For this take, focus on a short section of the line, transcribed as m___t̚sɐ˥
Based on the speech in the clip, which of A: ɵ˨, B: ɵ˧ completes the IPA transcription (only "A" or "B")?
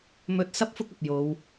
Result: B